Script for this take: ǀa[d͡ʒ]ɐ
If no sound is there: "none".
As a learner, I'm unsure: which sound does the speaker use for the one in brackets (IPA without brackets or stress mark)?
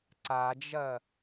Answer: d͡ʒ